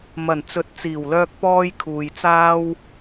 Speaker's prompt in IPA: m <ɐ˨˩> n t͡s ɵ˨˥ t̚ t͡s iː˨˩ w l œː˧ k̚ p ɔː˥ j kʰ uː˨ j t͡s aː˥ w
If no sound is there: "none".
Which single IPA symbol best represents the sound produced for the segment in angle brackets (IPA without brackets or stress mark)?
ɐ˨˩